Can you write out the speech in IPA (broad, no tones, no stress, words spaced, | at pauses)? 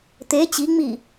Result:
t̪e t͡ɕiŋ͡mi